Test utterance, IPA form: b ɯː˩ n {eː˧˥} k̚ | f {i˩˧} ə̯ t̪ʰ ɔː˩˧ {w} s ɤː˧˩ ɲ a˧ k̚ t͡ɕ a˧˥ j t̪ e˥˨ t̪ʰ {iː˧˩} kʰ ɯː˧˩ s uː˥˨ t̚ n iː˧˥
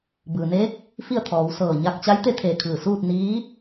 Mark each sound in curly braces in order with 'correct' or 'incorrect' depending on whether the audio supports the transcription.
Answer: correct, incorrect, correct, incorrect

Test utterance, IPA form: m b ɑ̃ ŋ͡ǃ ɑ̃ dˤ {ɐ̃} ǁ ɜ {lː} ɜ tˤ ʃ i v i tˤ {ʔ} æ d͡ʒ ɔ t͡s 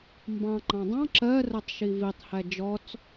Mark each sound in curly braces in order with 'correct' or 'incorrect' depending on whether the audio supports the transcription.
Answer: incorrect, incorrect, incorrect

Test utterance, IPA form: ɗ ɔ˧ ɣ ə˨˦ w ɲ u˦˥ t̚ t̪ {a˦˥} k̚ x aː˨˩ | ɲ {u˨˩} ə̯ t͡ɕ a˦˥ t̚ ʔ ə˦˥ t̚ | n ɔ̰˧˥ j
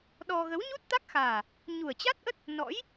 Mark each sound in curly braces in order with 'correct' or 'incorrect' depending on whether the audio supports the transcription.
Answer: correct, correct

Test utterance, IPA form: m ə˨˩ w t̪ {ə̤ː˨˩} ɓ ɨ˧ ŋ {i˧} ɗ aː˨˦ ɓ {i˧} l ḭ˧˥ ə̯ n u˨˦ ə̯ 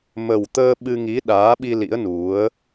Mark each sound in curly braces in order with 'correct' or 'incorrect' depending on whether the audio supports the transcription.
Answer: incorrect, incorrect, correct

